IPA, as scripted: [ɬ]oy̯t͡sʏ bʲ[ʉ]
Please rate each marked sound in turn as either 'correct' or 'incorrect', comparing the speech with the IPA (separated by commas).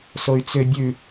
incorrect, correct